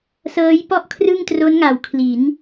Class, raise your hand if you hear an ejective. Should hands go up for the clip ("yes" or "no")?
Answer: no